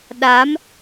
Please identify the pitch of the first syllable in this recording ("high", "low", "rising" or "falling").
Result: rising